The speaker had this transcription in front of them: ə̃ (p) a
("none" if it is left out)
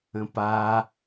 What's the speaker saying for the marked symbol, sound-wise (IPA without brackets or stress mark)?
p